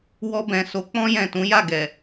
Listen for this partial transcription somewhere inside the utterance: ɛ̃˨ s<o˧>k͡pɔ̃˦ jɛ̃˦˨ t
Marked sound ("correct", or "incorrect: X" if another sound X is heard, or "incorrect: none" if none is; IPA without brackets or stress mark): incorrect: o˨˦